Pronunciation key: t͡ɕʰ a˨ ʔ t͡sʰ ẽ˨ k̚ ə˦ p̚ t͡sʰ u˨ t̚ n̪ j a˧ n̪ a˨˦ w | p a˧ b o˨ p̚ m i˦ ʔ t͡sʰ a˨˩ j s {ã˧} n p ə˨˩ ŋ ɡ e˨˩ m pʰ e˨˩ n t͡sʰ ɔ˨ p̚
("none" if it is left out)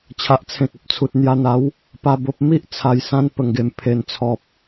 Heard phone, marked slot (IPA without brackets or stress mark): ã˧